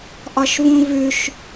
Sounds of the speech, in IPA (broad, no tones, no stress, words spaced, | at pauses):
ʔɒʃvũvʉʃ